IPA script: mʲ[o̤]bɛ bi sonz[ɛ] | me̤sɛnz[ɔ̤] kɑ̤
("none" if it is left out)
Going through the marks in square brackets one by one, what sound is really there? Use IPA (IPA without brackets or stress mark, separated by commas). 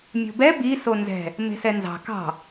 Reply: o̤, ɛ̤, ɑ̤